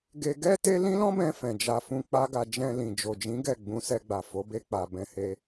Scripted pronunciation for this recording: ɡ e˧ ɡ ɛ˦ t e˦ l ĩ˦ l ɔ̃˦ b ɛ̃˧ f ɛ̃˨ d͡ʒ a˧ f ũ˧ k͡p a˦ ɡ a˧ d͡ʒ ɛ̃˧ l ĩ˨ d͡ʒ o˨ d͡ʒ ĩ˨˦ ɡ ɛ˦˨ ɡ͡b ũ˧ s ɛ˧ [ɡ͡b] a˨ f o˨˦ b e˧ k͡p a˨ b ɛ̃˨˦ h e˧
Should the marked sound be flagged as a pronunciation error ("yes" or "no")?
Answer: no